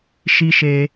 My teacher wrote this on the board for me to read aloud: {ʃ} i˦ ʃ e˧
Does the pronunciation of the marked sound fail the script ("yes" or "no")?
no